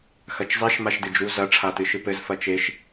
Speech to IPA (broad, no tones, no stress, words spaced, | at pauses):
xɐt͡ʃzˤeʃ maʃdɨd͡ʒu zɐ ʈ͡ʂʰatɨʃɨpɘz fɐt͡ʃeʃ